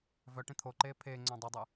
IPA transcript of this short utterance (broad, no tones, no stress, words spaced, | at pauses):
vœʈẽ t̪ʰoǃeː pʰeːŋ͡ǀœ̃ dˤydˤɨ